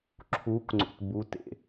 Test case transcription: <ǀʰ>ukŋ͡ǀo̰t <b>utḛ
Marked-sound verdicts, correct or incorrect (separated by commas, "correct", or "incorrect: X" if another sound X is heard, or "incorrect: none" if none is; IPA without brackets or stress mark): incorrect: ǁʰ, correct